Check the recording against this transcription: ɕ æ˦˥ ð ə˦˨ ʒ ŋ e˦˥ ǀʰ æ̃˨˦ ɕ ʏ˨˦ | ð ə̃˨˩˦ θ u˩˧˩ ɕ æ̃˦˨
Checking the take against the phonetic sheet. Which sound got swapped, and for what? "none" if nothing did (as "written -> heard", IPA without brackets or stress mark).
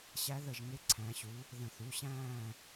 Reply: ʏ˨˦ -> u˨˦